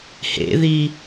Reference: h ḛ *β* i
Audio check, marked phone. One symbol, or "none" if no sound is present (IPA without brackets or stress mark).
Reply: ð